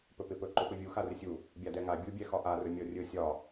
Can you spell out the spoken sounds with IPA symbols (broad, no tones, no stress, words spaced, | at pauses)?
pɵpɪpɵ ǃɵpɵvʲu xarɪsʲu | bʲadɛŋa bʲubʲɛ xɒʔarɵ mʲɔrʲɵ sʲɒ